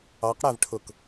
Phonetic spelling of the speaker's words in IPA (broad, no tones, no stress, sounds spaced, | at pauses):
ɑ q ɽ æ v ʈʰ ʊ k